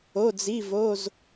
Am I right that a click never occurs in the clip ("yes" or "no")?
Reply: yes